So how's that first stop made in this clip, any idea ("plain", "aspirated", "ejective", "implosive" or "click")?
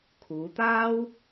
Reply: aspirated